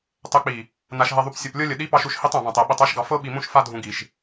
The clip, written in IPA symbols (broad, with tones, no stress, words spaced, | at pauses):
tˤɛ˨k͡pi˨ | na˨ʃɦɛ˨ðˤu˨p sʲɤ˨plʲɤ˦lʲə˨ ɗi˨˦pɑ˨ʃu˨ʃ hi˦tˤã˨βã˨tˤɛ˨ ɓi˨tˤa˦ʃɡɑ˨ fɤ˦ɓi˨mũ˦ʃ fa˦dʱũ˨ɡi˨ʃ